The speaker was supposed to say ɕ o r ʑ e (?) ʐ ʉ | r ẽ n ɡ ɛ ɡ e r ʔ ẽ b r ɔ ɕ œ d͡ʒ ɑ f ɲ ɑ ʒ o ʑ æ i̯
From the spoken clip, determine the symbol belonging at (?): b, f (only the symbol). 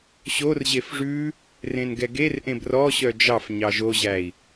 f